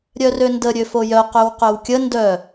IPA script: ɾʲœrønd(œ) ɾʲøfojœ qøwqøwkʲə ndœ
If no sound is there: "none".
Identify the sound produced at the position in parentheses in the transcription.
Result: ə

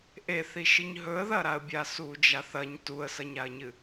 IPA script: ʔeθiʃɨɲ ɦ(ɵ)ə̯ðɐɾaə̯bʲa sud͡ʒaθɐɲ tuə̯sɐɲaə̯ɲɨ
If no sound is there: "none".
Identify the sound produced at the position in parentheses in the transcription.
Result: ɵ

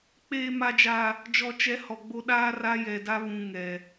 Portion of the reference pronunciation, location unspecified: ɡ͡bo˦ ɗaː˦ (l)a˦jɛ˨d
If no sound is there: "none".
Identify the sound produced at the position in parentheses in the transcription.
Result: r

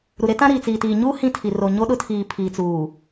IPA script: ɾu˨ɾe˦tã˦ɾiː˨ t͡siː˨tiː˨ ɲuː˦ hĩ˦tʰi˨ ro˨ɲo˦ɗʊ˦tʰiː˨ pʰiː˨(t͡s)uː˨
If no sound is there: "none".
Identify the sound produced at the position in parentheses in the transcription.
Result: t͡s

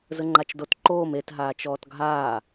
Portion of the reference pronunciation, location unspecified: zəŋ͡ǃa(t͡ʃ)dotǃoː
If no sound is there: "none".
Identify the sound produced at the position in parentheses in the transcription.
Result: t͡ʃ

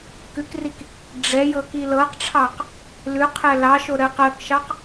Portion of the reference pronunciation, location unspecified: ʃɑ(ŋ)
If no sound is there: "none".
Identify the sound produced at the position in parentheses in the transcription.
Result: q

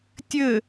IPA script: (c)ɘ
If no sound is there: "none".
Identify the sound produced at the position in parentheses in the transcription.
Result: tʲ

